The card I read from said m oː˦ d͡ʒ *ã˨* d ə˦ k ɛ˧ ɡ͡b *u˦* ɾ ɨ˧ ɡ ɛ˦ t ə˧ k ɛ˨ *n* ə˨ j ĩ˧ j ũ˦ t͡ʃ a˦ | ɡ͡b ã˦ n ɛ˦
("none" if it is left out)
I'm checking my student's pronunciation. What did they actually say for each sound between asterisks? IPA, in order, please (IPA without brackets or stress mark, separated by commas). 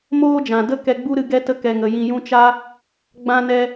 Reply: ã˨, u˦, ŋ